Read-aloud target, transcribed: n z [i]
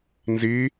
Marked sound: correct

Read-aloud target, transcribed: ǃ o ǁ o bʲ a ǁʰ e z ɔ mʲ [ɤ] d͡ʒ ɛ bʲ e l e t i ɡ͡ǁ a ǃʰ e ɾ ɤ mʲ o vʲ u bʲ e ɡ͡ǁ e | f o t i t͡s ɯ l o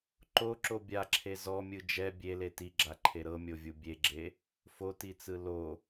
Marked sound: incorrect: ɯ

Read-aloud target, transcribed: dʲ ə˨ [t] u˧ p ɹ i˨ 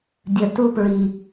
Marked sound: correct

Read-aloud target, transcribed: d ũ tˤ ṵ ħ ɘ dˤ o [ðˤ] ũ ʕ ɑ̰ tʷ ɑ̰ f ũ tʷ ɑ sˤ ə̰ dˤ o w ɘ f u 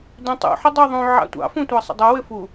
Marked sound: correct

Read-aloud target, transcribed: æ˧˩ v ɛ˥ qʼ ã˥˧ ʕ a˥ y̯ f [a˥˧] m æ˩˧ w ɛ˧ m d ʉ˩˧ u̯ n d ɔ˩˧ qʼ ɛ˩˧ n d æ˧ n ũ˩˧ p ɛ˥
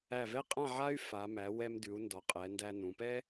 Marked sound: incorrect: a˩˧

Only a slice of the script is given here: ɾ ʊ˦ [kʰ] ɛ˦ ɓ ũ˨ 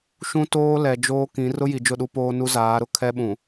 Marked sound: correct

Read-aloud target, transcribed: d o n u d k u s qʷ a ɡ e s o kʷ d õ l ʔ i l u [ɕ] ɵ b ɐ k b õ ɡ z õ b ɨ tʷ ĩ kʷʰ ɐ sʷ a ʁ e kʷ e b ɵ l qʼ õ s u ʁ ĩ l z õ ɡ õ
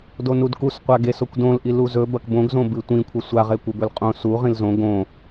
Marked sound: incorrect: z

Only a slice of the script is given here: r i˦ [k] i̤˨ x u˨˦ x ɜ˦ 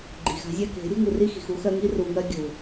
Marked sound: incorrect: x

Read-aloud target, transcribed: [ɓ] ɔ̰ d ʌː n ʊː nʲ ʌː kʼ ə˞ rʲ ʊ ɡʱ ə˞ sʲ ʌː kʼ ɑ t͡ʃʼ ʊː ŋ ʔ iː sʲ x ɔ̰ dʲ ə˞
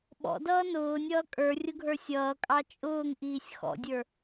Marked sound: correct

